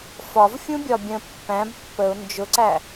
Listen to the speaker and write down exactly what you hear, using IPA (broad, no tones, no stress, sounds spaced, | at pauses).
f ɒ v fʲ ũ bʲ ɒ bʲ ə̃ pː æ̃ b pː ə ʊ̯ n d͡ʒ ʊ ǀ æ